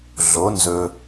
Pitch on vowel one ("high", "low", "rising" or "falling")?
rising